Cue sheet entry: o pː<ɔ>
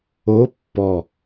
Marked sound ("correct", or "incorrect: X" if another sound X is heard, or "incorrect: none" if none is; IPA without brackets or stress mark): correct